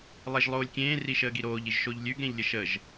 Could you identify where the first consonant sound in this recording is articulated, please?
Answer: alveolar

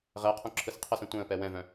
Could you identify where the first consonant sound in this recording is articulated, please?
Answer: uvular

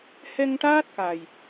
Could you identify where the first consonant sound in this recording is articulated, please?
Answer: glottal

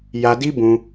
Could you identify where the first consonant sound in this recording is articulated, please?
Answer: palatal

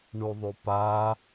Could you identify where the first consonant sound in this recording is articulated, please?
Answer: retroflex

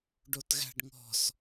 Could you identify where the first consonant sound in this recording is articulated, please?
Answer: retroflex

